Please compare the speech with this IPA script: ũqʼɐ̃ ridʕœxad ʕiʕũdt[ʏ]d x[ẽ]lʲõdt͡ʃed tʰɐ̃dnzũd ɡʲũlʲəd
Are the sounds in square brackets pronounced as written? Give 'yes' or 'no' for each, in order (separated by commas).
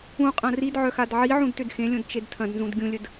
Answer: yes, yes